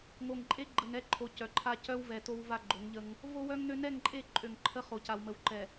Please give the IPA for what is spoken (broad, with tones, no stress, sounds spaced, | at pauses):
ŋ o˨ ŋ ǃʼ e˦ ɡ͡ǃ ə˨ ŋ ɛ˦ ǃʰ o˨ c œ˨ ǃʰ a˦ c œ˦ w v ɛ˨ t o˦ w v a˦ ɡ͡ǃ o˨˦ ŋ ʎ ə˦ ŋ | v o˦ w œ˦ ŋ n ø˦ n ɛ˦˨ ŋ ǃʼ e˦˨ ǃʼ ø˨ ŋ ǃʰ ə˦ χ o˨ c a˨ w m ə˨ w ǃ ɛ˨